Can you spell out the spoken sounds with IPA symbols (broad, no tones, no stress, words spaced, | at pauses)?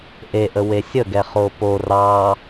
ʔeʔə wesʲəɡɛ χopo rɑ